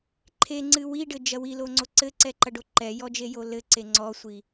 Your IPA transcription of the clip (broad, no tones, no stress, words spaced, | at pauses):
ǃʰeŋ͡ǀɨ wiɖɘd͡ʒɐ wiloŋ͡ǀo ǀɘǀɛǃɐɖo ǃɛjɔd͡ʒejo lɘǀe ŋ͡ǀɔsʷi